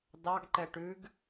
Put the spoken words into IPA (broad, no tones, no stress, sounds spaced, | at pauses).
d ɑ ɡ ǃ ɛ ʈ ʉ ɡ